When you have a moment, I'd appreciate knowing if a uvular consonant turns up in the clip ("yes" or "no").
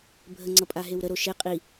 yes